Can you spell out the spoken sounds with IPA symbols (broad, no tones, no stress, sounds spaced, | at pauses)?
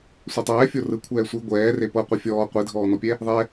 sʷ ɛ tˤ ɛː fʲ o r ɯ kʷʰ ɛː sʷ i ɡʷ ɛː r e p ɤ qʷ e fʲ ɔː qʷ i dʱ ɔː n ɔ pʲ ɛ | ðˤ ɛ